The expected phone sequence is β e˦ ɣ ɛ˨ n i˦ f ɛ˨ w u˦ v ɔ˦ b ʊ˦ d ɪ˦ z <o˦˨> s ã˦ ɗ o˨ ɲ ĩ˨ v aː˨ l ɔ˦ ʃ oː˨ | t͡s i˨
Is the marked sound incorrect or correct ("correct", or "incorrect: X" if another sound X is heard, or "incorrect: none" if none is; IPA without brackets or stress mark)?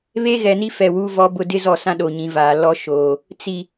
incorrect: ɔ˦˨